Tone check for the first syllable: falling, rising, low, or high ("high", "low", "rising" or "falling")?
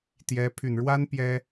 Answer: rising